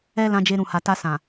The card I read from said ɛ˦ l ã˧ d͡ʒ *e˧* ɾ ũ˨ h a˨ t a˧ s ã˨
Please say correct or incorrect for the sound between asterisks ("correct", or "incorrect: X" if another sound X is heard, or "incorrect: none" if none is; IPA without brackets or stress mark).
correct